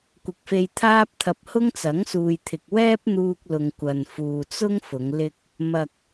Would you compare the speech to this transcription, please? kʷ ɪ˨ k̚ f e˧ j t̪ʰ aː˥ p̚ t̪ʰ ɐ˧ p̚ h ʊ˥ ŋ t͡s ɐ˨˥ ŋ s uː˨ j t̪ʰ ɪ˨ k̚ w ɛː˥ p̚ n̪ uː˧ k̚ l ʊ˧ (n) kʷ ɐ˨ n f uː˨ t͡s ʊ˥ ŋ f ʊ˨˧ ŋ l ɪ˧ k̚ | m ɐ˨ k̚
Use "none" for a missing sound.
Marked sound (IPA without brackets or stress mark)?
ŋ